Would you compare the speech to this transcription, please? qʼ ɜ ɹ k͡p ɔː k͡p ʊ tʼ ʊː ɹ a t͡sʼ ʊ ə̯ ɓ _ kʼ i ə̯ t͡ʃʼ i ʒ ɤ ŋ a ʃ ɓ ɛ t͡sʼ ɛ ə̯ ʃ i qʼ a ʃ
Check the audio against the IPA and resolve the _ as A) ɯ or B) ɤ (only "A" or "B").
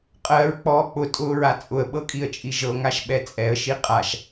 B